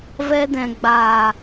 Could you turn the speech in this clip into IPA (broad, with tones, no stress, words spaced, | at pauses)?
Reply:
vɛ˧dɛ̃˨ɡ͡baː˨